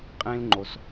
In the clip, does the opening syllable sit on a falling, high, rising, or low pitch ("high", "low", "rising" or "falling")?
high